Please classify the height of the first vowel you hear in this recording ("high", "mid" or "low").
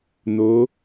mid